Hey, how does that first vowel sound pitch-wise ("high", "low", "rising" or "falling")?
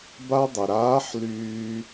high